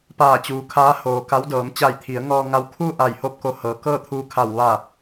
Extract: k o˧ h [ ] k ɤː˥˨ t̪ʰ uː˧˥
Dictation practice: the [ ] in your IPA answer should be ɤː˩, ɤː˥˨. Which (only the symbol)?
ɤː˩